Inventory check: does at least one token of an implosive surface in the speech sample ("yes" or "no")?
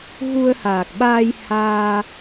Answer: yes